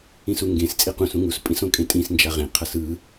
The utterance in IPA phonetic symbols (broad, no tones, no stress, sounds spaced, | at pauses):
ĩ s u ŋ ɡ ẽ s t͡sʼ i q ũ s ũ ŋ u s pʼ ĩ s õ kʼ ẽ tʼ ĩ s n d͡ʒ a ʁ ẽ qʰ ʌ s ɯ